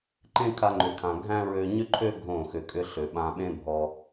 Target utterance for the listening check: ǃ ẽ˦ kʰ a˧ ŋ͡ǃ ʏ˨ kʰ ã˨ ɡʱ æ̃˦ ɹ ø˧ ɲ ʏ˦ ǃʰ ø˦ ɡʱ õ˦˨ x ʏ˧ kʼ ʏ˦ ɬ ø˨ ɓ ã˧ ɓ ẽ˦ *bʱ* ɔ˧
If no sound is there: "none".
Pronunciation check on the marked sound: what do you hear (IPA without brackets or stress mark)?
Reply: bʱ